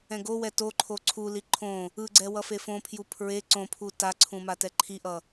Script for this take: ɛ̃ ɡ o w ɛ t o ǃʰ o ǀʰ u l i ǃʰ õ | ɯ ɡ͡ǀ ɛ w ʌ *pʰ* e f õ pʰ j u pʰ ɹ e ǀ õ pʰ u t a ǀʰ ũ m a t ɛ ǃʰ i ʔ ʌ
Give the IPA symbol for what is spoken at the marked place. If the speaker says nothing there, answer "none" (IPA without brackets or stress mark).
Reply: f